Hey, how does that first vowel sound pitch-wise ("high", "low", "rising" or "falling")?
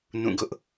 falling